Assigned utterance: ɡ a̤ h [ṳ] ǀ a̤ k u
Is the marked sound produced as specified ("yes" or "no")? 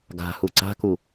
no